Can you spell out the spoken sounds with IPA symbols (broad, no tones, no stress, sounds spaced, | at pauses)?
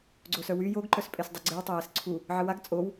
ɡ͡ǀ o s œ w y j o ɡ ǃ œ s pʼ e s dˤ y ɡ͡ǀ e w tˤ o j ɛ s ǀʰ u | ʕ ə w a ɡ t͡sʼ o w